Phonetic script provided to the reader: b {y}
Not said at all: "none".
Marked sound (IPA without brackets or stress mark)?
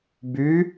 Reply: y